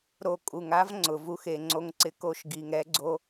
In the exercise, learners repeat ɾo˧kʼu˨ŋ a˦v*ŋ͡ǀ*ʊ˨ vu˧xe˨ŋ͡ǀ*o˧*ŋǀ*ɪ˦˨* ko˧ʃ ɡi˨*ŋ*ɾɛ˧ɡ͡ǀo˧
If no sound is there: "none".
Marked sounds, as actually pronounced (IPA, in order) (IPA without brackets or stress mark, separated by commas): ŋ͡ǀ, o˧, ɪ˧, ŋ